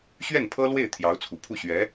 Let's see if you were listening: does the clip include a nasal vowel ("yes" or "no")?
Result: no